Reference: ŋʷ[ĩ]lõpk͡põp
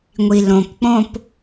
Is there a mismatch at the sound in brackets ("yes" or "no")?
yes